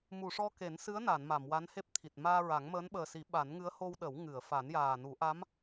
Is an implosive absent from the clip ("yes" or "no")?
no